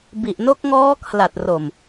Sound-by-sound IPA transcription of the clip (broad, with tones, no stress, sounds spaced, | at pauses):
b i˨˩ ʔ n o˦˥ k̚ ŋ ɔː˦˥ kʰ l a˨˩ t̚ r o˨˩ m